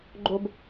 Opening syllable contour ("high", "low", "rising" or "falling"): high